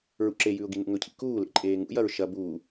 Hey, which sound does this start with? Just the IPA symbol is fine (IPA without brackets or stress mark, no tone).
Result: ɹ